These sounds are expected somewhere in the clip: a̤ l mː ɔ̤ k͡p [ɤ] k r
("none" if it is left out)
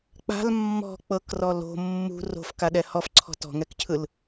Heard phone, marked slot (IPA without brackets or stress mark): ɤ